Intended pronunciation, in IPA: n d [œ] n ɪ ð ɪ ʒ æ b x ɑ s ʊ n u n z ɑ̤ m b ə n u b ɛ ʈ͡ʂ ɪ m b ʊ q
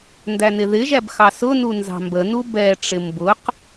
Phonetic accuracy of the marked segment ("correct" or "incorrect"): incorrect